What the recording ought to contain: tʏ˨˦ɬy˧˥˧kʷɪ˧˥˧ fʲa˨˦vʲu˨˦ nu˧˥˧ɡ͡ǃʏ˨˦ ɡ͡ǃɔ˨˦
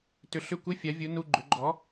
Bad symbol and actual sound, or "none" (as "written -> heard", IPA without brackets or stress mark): y˧˥˧ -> ʏ˧˥˧